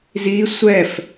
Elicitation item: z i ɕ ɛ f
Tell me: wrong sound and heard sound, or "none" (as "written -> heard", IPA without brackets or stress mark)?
ɕ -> sʷ